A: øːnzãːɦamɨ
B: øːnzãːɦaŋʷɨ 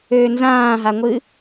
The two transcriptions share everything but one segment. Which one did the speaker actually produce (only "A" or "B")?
B